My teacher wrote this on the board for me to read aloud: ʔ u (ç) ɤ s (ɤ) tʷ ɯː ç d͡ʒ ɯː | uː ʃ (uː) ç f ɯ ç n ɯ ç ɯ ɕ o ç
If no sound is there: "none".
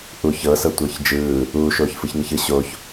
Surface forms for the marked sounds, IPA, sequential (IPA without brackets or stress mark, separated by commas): ç, ɤ, oː